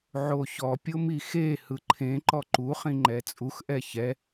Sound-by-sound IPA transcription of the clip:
ʕ o ç ɔ pʲ o m i x e h ɯ ǃʰ ẽ ǃ ɔ ǃ u χ ĩ ŋ͡ǃ ɛ t͡sʼ u x ʔ ɛ ç ɛ

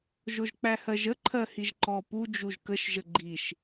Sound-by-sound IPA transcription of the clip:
ʒ o ʒ k͡p æ h ɜ ʒ ə ǃʰ ɜ h i ʒ ǃ ɔ p u d͡ʒ u ʒ k ə ʃ ʒ ə ɡ͡ǃ i ʃ

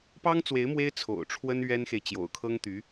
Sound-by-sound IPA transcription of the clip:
p ɑ˥ ŋ t͡s w e˧˥ ɪ̯ m w e˥ ɪ̯ t͡sʰ o̰˨˩ ʊ̯ ʈ͡ʂʰ w ə˥ n ɥ ɛ˥ n x e˨ ɪ̯ t͡ɕ j o̰˨˩ ʊ̯ kʰ ɤ˥ ŋ t̪ y˧˥

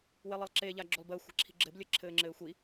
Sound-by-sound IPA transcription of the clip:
w e lˠ e lˠ ǁ e ʎ a ɡ͡ǁ o lˠ b ɘː xʷ ɛ̤ ǁʰ i̤ ɡ͡ǁ ɘ b lʲ ə ǁʰ ɘː ŋ͡ǁ ɘː xʷ i

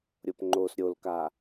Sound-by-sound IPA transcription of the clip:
ɾʲ o p ŋ͡ǃ o s ɾʲ o l k a

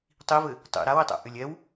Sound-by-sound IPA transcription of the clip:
tˤ i v ɘ | tˤ ḭ ɾ a w i tˤ ɛ̰ ʔ ʏ lʲ ɛ w

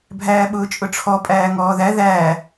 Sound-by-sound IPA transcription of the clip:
bʱ æː ɓ ʊː t͡ʃʼ ʊ ʈ͡ʂʰ ɔ pʼ æː ŋ ɔː ð æ ð æː

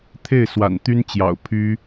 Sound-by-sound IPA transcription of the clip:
t̪ʰ e˥˩ ɪ̯ s w a̰˨˩ n t̪ y˥ n t͡ɕ j ɑ̰˨˩ ʊ̯ pʰ y˥

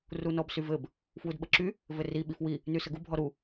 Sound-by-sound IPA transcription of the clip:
r u n ɔ b s y v ɘ b | f w u d ɓ ə ǁ y | v ɘ r i ɓ i f w i | n y s ə ɡ u bʱ ɔ ɾ u

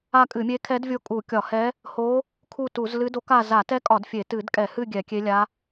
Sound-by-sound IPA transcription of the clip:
a˦˨ kʼ ɨ˧˩˧ mʲ e˧˥ kʰ ɛ˧˥ d vʲ o˦˨ kʼ u˧˩˧ kʲ ɒ˧˩˧ h ɛ˧˥ | h o˧˥ | kʰ u˦˨ t u˧˩˧ z l ɨ˧˥ d o˧˥ k a˦˨ z a˧˩˧ t ɛ˧˥ kʼ ɒ˧˩˧ d fʲ e˧˩˧ t ɨ˧˩˧ d kʼ ɛ˧˩˧ h ɨ˦˨ ɡʲ ɛ˧˩˧ kʲ e˧˥ lʲ a˧˥

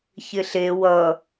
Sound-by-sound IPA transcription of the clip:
ç ɪ ɬ e w ʌ

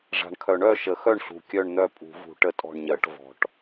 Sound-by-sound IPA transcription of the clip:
ʐ a̤˨˩ ɳ kʰ œ˨˩˦ ɳ œ˥˨ ʃ ə˨˩˦ x œ˥˨ ɳ ɬ ṳ˨˩ kʲ œ˥˨ ɳ n̪ œ˥˨ pʼ ṳ˨˩˦ v ṳ˨˩˦ ʈ ə˥˨ tʼ ɔ̤˥˨ ɳ ɲ ɜ˨˩˦ ʈ v ɔ̤˨˩˦ ʈ

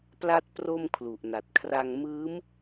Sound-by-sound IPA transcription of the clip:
p l a˥˩ t̚ p r o˥˩ m kʰ l u˨˩ ʔ n a˨˩ t̚ kʰ r a˧ ŋ m ɯː˦˥ m

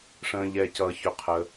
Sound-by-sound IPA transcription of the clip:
ʂ ə̃ː˩ ʎ ɛ˩ c ʌː˩ ç ɵ˩ qʰ ə˩

